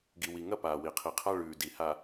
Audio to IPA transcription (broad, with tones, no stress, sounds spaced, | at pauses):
ɡ i˨ w i˨ ŋ ɐ˦˨ p aː˨ w i˨ qʰ i˨ qʰ a˦ ɭ ʉː˨ d i˨ h a˨